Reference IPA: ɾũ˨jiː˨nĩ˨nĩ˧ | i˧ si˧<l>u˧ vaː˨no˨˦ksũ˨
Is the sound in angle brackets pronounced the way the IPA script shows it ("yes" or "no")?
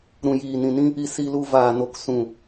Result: yes